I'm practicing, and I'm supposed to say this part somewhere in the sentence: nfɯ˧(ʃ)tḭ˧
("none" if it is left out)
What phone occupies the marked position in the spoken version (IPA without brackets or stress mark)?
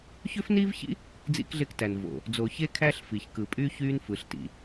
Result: ɬ